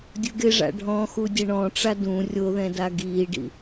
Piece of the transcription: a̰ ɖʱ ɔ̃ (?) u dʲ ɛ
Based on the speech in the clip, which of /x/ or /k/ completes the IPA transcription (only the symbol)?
x